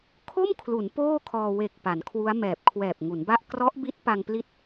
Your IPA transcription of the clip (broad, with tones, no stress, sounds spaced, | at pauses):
kʰ o˥˩ m kʰ l u˩˦ n p oː˥˩ kʰ ɔː˧ w e˨˩ k̚ p a˩˦ n kʰ w u˦˥ a̯ m ɛː˨˩ p̚ kʰ w ɛː˨˩ p̚ ŋ u˩˦ n b a˥˩ ʔ k r ɔ˦˥ ʔ b i˦˥ t̚ p a˧ ŋ p l i˦˥ t̚